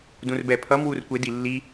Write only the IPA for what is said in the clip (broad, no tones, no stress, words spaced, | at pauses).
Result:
dũrbɛpʰʌm wurkʷe dilːi